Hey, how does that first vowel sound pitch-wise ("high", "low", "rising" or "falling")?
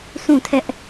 falling